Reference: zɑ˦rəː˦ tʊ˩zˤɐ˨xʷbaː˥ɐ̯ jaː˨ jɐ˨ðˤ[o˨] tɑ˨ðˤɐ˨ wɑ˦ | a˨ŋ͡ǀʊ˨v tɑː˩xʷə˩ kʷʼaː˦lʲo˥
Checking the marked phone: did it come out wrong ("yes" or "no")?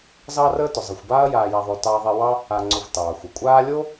no